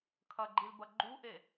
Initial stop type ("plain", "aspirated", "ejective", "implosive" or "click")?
aspirated